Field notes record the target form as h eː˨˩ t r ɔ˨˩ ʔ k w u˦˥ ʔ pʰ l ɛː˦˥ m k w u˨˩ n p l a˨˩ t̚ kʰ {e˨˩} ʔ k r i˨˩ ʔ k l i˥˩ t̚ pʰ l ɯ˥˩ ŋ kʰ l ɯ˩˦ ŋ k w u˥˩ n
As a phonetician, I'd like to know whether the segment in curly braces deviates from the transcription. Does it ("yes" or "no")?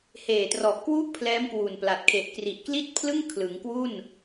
no